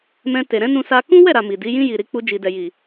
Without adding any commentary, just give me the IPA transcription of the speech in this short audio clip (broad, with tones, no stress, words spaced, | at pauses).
mɛ̃˧te˨ ɾɛ̃˨˦nũ˧sa˧ kũ˦wɛ˦˨ ɾa˨ mi˨di˨˦ jĩ˧ ji˨ɾi˧k͡pu˧ d͡ʒi˨dɛ˨ji˨